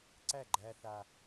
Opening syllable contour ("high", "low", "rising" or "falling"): falling